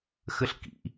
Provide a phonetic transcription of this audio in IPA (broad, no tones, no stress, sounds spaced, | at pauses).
x ə ɬ k ḭ